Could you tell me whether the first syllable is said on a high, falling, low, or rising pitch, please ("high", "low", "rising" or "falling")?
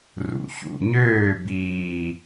rising